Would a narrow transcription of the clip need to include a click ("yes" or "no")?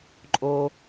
yes